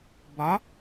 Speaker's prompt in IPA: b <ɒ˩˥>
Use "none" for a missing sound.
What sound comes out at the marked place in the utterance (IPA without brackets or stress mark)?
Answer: ɒ˩˥